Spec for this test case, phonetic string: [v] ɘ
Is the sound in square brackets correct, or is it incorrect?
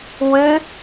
incorrect